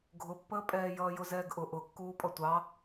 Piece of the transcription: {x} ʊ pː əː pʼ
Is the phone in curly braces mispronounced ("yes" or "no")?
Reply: yes